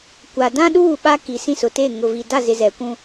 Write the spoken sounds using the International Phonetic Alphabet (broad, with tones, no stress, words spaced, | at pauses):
kʷa˨ dã˦ɗuː˦˨ ɓa˦ki˨ sĩ˦˨sʊ˨teː˦˨ ŋʊ˨vi˨da˦˨zɪ˨ zɛ˨kʷũ˦